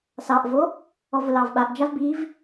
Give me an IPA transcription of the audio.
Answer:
s ɑ ʔ v o | ɔ v ʊ l ɑ v ɓ a ʔ d͡ʒ a v b i v

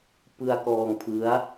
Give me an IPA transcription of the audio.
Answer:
p ɯ˧ a̯ k ɔː˧ ŋ pʰ ɯ˦˥ a̯

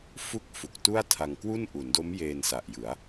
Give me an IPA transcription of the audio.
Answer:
f u˥˩ k̚ f u˨˩ k̚ t u˥˩ a̯ tʰ a˧ ŋ k w u˥˩ n ʔ u˩˦ n d o˦˥ m j eː˧ n s a˨˩ ʔ j ɯ˩˦ a̯

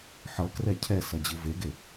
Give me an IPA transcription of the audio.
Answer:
ħ ʌ k r ɛ cʰ ɛ s ʌ d͡ʑ ɯ v e ɡ e

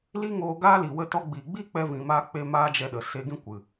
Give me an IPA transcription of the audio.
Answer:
l i˦ ŋ oː˧ ɡ aː˦ l i˨ w ə˦ t ɔ˧ ɡ͡b iː˨ ɡ͡b iː˦ k͡p ɛ˧ v ĩ˨ m aː˧ k͡p e˧ m aː˦ d͡ʒ ɛ˧ ɗ ə˨ s e˧ ɡ ĩ˦ kʷ ɨ˨

